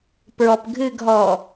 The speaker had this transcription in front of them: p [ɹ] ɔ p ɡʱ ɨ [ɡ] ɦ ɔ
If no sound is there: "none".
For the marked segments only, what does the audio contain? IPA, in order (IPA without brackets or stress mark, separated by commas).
ɹ, ɡ